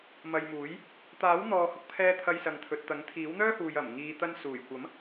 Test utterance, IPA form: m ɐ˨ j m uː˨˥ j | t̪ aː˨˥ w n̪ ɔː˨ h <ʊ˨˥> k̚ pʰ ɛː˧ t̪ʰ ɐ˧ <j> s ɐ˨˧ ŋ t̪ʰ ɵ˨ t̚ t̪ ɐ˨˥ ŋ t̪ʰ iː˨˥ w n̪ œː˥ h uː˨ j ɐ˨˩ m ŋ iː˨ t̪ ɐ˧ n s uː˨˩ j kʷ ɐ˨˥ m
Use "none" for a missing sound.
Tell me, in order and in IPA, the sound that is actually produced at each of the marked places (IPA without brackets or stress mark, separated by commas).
ʊ˧, j